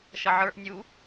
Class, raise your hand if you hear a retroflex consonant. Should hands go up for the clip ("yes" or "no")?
no